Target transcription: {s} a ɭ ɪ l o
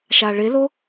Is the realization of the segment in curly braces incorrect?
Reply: yes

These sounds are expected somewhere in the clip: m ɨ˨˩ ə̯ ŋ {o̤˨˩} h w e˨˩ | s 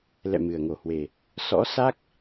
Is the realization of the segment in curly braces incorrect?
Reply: yes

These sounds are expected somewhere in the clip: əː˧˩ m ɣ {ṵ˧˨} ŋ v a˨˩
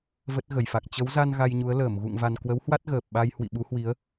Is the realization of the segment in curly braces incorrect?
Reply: no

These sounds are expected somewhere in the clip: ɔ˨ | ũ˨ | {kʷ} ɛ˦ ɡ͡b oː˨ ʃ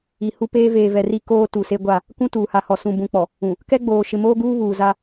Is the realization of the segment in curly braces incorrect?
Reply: yes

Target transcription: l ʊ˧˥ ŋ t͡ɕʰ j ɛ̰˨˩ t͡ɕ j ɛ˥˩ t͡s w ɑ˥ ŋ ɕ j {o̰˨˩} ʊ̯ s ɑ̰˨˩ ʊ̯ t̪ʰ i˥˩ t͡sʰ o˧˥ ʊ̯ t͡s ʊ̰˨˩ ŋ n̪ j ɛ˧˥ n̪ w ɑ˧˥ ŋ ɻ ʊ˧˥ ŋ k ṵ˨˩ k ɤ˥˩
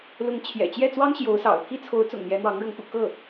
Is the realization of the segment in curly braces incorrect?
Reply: yes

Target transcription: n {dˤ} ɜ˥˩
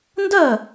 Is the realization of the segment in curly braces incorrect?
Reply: yes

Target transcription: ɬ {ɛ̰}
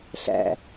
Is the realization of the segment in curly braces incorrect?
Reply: yes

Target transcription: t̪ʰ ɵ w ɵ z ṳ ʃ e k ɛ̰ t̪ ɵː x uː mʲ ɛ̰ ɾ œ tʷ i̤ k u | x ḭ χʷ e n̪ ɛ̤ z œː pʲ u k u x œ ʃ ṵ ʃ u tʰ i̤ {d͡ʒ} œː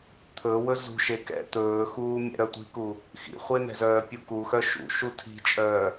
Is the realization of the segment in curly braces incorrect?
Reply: yes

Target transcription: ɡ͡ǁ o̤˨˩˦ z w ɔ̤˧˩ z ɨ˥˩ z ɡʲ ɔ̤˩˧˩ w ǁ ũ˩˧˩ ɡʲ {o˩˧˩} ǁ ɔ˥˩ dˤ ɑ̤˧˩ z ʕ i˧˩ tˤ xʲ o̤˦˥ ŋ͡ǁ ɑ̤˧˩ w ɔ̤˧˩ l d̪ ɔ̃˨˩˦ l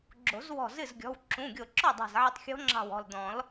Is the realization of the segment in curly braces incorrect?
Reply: yes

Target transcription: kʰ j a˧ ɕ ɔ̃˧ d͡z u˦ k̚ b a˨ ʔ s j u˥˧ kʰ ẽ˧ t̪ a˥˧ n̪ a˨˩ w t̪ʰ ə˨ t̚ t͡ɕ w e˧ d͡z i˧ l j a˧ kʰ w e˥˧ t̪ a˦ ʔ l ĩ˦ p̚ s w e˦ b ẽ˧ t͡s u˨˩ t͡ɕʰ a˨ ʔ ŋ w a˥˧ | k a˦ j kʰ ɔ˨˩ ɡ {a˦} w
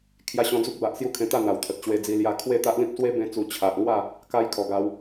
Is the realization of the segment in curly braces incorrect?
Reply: yes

